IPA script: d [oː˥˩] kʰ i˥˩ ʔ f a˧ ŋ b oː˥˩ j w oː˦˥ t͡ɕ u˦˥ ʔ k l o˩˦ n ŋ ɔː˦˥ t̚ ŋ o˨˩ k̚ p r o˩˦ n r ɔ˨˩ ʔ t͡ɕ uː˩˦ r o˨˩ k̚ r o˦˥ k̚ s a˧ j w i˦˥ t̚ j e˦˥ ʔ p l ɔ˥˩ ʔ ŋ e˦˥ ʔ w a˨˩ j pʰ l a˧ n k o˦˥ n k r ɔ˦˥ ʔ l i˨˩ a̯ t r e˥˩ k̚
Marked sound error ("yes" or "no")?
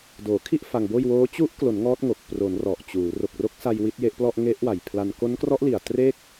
yes